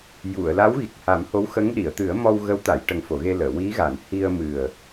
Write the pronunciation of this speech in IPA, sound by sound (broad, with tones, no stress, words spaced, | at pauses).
ju˨˩˨ə̯la˧˥wɣi˨˩k̚ ha˨˩˦mho˧˥wxə˧˥ŋ ɗi˨˩˨ə̯t̪ɨ˨˩˦ə̯mɔ˧w ɣə˧˥wt̪a˨˩˨jʈə˨˩ŋfo˨˩˨ ɣe˧ləː˨˩˨ wi˧˥ɣa˨˩˨n hi˧ə̯mɨ˨˩ə̯